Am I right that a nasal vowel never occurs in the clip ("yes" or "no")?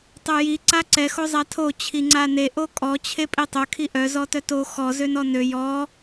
yes